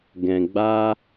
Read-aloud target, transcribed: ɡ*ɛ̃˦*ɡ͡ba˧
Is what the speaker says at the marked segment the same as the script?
no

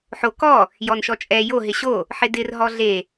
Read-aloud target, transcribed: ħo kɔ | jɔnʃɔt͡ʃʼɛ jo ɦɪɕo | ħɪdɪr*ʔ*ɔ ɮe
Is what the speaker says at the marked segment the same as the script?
no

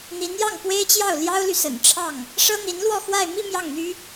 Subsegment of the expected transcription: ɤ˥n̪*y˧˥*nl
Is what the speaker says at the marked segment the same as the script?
no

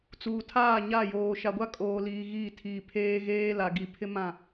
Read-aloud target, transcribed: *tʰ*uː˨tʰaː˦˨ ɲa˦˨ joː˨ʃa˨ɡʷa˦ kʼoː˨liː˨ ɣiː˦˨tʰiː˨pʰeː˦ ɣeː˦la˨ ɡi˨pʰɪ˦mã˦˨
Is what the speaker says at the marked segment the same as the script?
no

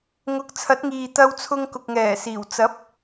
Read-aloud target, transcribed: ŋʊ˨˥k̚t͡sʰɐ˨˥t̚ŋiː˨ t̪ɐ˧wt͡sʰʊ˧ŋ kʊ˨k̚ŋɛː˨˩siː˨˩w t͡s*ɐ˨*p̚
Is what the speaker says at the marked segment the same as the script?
no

